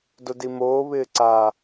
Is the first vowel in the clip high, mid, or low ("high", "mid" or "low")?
mid